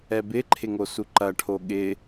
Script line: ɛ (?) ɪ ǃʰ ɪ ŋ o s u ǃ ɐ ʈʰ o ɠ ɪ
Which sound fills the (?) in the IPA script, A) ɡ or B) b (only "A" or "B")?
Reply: B